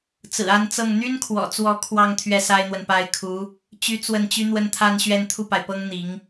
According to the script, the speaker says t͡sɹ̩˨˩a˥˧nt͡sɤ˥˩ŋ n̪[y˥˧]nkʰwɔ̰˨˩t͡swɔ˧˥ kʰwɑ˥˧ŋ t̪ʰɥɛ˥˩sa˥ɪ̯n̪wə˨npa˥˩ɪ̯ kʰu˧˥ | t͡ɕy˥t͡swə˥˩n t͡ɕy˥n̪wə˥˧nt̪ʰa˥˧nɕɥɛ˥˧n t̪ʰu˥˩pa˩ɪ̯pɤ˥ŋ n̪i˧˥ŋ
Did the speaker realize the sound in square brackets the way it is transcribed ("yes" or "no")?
no